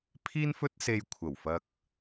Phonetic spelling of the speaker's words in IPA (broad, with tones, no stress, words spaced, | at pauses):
pʰiː˥nfɵ˥t̚ se˧jkʷʰɐ˨˩wfɐ˧k̚